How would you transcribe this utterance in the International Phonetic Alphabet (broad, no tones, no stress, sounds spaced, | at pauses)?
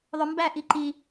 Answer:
ðˤ ʊ m b æ ʔ i ǃ i